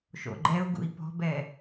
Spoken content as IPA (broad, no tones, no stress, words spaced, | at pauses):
ʃo̰ɡ͡ǃɛu̯ɡṵi̯ pɔ̤bɛ